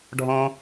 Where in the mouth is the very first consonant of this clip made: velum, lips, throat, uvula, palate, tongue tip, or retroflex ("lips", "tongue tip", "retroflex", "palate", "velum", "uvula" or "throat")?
retroflex